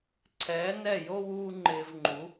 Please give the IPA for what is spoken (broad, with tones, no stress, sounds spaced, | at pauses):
ǀʰ ɛː˩˥ n ɛ˥˩ j o˥ w uː˥ ŋ͡ǃ ɪː˧ v ŋ͡ǃ u˩˥